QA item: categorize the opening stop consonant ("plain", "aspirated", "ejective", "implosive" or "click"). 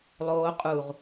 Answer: ejective